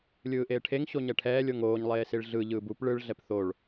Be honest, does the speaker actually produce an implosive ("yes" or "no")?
no